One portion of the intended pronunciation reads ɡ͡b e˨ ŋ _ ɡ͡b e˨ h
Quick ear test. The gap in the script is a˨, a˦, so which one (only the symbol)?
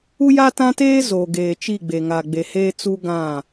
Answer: a˨